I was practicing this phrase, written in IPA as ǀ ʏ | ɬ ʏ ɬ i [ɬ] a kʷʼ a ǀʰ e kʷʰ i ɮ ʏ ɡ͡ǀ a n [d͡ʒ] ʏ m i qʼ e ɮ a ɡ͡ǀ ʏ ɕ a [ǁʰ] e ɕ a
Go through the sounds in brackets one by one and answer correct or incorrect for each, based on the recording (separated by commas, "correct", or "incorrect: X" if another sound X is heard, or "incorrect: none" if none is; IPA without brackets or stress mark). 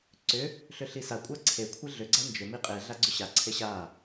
incorrect: s, correct, incorrect: ǀʰ